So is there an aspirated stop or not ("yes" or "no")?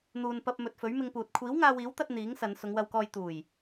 yes